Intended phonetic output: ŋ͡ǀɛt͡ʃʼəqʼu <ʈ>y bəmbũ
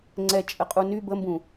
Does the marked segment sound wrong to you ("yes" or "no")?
yes